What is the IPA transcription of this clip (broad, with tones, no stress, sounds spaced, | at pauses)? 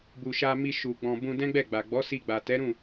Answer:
b u˨ ʃ a˧ m i˧ ʃ u˨ ɡ͡b ɔ̃˨ b ũ˧ d ɛ̃˦ ɡ͡b ɛ˦˨ ɡ͡b a˨ ɡ͡b ɔ˨˦ s i˧ ɡ͡b a˨ t ɛ˨˦ ɾ ũ˦˨